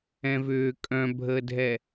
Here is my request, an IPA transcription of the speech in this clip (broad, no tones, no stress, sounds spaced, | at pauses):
ɛ̃ v ʏː kʼ œ̃ bʱ əː dʱ ɛ